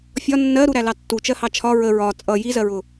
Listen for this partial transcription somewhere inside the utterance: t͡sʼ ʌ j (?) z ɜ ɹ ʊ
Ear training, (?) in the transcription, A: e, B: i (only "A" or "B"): B